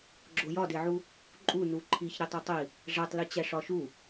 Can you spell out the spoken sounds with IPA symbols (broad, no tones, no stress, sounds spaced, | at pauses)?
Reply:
ɡ͡ǁ o j ɒ d e ʕ u | ǃʼ u n u ǃʰ i ç ɾ i tˤ o tˤ i | ʐ æ tˤ l i t͡ɕ æ ʂ ɒ ʃ u